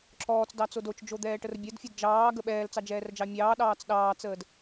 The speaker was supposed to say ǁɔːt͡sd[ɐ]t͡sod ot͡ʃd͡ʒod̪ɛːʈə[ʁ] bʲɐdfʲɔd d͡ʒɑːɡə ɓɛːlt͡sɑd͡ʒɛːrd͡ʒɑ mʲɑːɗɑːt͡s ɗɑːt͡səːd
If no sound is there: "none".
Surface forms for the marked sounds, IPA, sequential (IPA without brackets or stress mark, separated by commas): ɑ, r